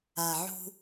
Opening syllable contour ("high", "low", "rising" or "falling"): low